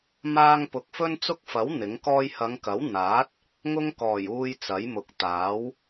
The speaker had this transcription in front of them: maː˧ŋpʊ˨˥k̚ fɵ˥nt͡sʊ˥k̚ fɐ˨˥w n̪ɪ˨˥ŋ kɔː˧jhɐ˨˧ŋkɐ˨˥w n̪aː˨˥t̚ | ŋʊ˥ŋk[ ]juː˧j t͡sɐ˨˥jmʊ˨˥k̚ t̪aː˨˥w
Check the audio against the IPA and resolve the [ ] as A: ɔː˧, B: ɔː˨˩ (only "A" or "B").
B